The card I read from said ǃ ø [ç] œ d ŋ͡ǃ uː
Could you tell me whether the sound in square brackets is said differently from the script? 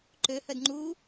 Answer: yes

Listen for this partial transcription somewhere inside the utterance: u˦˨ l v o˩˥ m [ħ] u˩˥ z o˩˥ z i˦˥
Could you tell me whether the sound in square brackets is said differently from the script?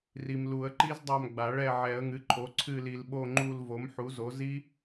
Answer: no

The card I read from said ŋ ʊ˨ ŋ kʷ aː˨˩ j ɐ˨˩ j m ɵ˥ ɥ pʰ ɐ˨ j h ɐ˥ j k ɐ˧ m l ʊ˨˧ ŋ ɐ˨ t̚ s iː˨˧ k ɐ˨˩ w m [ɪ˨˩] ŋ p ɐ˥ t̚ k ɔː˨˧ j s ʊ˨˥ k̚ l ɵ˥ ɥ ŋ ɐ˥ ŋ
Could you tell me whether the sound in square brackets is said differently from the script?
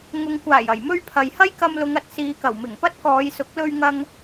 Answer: no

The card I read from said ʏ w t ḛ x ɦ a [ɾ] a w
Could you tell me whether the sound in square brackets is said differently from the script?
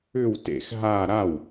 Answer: no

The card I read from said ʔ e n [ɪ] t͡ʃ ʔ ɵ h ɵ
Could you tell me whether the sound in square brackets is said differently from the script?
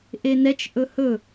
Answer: yes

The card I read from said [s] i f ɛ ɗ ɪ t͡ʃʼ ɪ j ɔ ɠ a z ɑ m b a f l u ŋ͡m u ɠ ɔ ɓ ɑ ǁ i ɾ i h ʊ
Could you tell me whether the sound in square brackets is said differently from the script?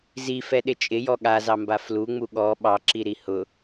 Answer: yes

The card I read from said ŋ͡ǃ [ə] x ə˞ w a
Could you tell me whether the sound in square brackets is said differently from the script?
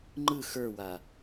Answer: yes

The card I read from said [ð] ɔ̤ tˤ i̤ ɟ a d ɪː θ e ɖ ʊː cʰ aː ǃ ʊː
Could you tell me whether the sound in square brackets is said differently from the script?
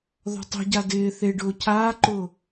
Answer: no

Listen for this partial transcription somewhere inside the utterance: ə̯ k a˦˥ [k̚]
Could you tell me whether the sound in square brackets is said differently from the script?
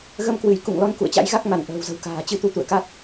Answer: yes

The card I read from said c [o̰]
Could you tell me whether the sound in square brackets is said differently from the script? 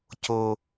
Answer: yes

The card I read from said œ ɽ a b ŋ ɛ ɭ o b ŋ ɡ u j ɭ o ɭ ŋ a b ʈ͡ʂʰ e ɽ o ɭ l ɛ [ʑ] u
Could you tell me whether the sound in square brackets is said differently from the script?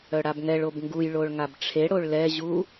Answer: no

